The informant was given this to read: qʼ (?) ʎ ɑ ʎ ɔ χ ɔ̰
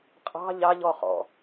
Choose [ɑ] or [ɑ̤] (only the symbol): ɑ̤